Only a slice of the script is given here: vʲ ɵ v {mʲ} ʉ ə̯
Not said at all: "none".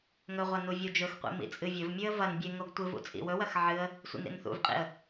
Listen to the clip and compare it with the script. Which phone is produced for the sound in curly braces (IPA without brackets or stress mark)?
mʲ